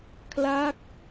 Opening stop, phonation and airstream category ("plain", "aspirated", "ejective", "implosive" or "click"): aspirated